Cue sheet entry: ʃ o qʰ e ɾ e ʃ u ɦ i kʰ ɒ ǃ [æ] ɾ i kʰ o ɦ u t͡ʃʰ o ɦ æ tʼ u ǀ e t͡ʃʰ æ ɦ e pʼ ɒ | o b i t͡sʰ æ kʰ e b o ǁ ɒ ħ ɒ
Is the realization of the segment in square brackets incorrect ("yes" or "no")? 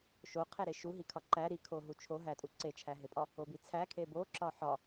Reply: no